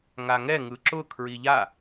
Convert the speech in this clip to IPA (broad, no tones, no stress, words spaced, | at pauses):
ŋaŋɛ ŋɯǁʊ kʰɹiʎa